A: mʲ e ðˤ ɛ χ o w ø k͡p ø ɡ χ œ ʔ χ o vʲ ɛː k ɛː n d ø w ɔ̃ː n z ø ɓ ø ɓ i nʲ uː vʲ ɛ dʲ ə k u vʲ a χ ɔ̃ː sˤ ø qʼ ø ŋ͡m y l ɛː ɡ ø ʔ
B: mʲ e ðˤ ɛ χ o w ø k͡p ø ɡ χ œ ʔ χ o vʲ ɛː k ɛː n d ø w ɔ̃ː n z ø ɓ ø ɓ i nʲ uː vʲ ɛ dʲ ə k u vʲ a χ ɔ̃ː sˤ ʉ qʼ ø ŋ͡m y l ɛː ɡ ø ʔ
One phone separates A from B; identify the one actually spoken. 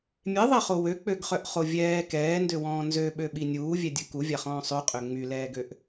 A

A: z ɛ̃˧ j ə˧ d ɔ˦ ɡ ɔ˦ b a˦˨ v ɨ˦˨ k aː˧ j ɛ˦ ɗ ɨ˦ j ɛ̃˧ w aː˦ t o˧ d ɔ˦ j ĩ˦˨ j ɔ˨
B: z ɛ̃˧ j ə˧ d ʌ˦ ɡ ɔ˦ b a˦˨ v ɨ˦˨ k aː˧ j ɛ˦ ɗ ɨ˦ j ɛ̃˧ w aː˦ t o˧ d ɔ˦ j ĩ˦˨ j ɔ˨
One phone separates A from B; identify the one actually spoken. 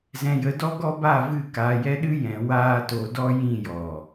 A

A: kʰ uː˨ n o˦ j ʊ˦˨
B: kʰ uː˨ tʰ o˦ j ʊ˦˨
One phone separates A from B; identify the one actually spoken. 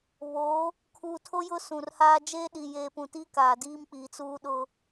B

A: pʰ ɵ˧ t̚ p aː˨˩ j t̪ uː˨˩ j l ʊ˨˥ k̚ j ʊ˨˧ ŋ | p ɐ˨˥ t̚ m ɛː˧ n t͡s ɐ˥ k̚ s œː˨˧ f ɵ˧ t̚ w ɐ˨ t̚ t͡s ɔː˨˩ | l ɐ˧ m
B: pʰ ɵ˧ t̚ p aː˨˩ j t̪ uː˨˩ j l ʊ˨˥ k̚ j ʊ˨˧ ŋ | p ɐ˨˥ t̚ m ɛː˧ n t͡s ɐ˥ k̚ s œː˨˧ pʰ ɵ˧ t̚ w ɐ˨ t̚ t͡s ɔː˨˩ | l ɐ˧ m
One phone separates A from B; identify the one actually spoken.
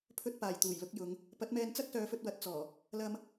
A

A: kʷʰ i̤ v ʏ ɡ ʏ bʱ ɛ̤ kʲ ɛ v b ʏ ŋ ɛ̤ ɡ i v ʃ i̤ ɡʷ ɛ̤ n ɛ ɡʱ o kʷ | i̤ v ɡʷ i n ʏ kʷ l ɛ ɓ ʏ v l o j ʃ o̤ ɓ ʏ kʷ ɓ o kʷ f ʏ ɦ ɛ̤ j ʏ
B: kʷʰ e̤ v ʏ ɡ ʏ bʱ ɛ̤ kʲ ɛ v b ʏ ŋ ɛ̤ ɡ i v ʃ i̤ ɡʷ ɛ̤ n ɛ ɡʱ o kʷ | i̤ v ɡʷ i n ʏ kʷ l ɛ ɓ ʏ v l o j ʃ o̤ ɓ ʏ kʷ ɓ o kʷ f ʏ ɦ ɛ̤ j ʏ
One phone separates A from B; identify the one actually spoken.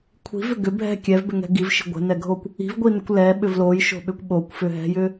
A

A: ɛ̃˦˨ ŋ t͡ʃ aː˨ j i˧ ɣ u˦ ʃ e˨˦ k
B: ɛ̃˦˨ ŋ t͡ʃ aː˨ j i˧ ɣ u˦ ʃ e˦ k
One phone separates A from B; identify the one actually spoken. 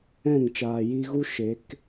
A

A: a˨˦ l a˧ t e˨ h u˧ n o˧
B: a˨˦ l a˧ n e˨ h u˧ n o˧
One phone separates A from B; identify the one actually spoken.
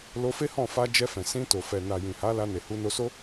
B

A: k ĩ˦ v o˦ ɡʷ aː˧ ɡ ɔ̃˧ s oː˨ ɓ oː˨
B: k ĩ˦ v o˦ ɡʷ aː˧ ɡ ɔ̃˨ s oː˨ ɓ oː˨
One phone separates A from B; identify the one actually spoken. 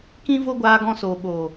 A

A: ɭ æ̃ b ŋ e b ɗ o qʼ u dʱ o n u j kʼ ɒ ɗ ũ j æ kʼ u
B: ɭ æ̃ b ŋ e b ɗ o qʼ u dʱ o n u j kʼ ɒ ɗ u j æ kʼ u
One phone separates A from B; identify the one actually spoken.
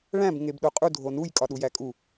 B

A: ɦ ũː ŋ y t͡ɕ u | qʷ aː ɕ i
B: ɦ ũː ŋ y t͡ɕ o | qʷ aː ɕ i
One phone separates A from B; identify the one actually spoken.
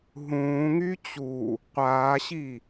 A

